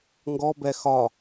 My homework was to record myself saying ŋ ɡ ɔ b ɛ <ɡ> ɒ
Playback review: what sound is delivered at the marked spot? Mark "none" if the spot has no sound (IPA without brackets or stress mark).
x